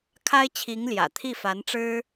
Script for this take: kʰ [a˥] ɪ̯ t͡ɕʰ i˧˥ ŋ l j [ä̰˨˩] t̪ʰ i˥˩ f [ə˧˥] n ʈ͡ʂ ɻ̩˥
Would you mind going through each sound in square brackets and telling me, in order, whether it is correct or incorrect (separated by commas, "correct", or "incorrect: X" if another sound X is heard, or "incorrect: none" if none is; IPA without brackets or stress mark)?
correct, correct, incorrect: a˧˥